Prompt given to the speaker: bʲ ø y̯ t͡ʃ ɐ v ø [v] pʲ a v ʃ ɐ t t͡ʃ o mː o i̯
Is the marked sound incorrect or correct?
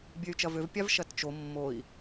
correct